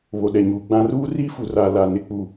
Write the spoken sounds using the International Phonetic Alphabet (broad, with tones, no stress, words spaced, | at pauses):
βo˨ɗɛ˨ɲuː˨ɡ͡bã˦ ruː˦ri˦fu˨ra˨ la˨nɪ˦˨k͡pu˦˨